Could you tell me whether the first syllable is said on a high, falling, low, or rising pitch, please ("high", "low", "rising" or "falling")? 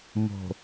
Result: low